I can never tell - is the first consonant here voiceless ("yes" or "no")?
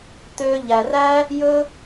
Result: yes